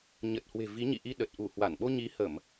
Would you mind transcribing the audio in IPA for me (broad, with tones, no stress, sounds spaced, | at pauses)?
ɲ ə˨˩ t̚ h w e̤˨˩ v i˨˦ ɲ ḭ˧˨ ʔ i˧ ɗ ə˨˩ t̚ ʔ u˧˩ h w a˧˩ n ɓ o˧ ɲ i˨˦ h ə˧˩˨ m